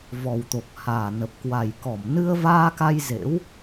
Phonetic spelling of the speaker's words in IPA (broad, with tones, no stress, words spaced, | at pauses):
vɔ˨˩wt̪o˨˩k̚ haː˨˩nə˨˩p̚ kwa˨˩jkɔ˧˩m nɨ˧ə̯vaː˧ka˧j zḛ˧˥w